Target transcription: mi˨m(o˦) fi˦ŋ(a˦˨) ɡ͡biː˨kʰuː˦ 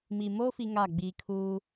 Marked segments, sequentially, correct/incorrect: correct, correct

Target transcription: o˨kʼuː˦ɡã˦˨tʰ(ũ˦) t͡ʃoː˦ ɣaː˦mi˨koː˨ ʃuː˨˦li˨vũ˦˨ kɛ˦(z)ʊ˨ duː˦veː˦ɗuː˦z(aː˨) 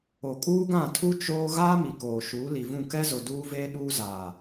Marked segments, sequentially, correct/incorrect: incorrect: u˦, correct, correct

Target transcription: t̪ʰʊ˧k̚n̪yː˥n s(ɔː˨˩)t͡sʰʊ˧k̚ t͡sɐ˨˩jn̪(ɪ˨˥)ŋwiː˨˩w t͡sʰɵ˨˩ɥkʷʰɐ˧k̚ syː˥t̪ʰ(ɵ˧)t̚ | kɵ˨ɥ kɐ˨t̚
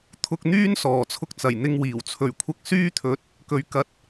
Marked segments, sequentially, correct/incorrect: correct, incorrect: ɪ˧, incorrect: ɵ˨˥

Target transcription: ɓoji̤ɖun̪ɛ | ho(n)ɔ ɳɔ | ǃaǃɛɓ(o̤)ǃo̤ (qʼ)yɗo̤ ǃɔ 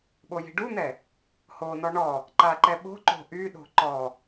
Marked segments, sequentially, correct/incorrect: correct, correct, incorrect: ʔ

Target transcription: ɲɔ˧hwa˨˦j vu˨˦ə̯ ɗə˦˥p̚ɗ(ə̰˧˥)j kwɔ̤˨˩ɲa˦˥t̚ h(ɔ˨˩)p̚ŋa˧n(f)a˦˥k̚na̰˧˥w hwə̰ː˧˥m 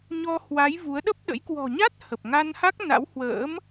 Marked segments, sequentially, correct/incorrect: correct, incorrect: ə˨˩, incorrect: h

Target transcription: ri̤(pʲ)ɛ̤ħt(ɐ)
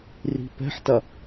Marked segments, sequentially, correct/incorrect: incorrect: p, correct

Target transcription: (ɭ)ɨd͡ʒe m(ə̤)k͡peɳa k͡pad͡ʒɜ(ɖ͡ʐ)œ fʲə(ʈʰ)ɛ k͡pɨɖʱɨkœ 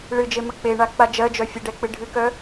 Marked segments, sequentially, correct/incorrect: correct, incorrect: ə, incorrect: d͡ʒ, incorrect: ɖ

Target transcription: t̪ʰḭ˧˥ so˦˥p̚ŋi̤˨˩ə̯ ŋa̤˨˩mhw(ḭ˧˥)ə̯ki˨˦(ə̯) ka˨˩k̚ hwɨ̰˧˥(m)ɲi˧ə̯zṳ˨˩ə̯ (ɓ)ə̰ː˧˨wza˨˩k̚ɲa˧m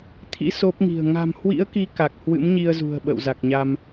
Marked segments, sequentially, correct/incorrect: correct, incorrect: none, correct, correct

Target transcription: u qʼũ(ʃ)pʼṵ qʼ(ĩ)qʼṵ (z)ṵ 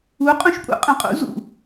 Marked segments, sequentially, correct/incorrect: correct, incorrect: ẽ, correct

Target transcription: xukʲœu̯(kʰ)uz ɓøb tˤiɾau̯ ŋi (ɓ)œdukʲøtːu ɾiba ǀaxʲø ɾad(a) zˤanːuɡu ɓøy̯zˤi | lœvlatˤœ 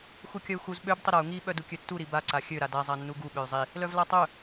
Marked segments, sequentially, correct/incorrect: incorrect: x, correct, correct

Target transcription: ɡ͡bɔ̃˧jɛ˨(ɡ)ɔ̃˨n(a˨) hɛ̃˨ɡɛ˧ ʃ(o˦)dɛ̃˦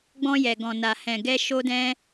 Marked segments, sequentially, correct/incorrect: correct, correct, correct

